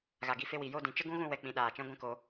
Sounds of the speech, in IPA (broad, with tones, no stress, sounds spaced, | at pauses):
ɣ a˨ ɡ i˧ f e˧ w i˨ j o˦˨ d ĩ˨ t͡ʃ ə˦ ɡ ũ˦ ɣ ũ˦˨ w ɛ˨ k͡p ĩ˨ ɗ aː˨ t͡ʃ ɛ̃˦ ɡʷ ɛ̃˦ k o˧